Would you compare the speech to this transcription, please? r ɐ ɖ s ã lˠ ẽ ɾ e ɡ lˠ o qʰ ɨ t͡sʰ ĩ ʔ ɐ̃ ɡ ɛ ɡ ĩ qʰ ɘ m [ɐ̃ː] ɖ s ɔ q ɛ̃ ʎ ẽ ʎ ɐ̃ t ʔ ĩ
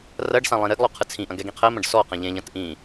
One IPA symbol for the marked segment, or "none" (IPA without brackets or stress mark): ɐ̃